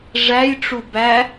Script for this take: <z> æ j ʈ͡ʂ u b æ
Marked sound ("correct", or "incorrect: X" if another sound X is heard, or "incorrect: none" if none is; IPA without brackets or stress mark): incorrect: ʐ